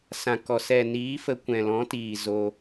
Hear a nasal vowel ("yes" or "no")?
yes